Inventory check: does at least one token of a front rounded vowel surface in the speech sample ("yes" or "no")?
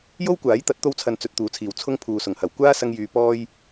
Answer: yes